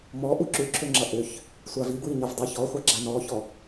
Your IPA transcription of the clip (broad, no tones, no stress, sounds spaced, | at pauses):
m ɔ ʔ u ǁ ʉ ǁʰ ø ŋ͡ǁ ʌ ʔ ø ç | sʷ a v i ɡ w i ɲ ʌ v dˤ ʌ ç ɔ χʷ ɑ ɡ͡ǁ a n ɔ ç ɔ